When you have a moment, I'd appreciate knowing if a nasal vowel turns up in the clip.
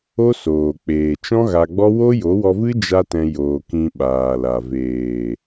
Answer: yes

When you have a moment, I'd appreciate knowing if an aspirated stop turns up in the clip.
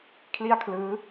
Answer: yes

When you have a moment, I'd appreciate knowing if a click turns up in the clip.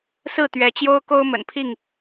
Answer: no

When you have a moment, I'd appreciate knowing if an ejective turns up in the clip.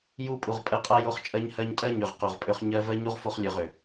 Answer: yes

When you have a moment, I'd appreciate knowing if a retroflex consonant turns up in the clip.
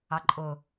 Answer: no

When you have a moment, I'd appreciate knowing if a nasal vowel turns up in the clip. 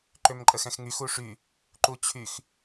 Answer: yes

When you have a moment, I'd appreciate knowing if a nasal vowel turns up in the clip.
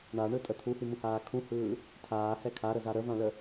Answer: yes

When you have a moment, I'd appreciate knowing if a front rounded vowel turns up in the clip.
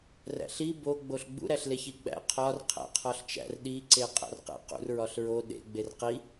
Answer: no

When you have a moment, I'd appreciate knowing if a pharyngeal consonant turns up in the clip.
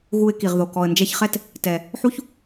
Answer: yes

